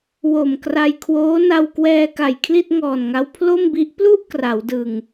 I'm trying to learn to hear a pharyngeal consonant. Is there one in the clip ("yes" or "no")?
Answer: no